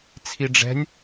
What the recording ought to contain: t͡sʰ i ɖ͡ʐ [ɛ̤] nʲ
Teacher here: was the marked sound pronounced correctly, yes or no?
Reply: yes